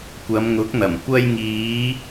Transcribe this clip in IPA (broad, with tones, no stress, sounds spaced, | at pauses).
kʷ ɐ˨˧ m ŋ ʊ˨˥ k̚ n̪ ɐ˨˩ m kʷ ɐ˧ j ŋ iː˨˧